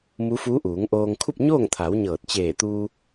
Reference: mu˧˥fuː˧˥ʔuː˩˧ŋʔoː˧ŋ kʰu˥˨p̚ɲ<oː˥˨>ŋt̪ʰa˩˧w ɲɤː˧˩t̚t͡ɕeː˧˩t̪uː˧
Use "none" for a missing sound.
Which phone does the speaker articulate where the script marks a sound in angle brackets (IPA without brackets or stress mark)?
oː˥˨